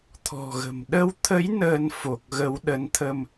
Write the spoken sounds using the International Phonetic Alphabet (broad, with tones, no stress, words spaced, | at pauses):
t̪ʰɔ̤˨˩ɣə̤˨˩m ɗə˧wt̪ʰə˨˦j nəː˧nfo˨˩k̚ɣə˨˦w ɗə˨˦nt̪ʰə˧m